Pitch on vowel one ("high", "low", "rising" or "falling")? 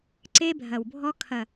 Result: high